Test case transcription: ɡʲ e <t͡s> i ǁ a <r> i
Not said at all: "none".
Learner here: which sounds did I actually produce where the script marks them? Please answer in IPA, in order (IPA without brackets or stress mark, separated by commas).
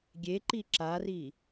ǃ, r